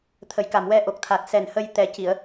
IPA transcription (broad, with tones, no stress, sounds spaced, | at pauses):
t̪ʰ ə˨˩˦ j k a˨˩ m w ɛ˧ ʔ o˨˩ k̚ t̪ʰ a˨˩ t̚ s ɛ˨˩ n h ə˧ j t̪ ɛ˨˩ c i˨˩˨ ə̯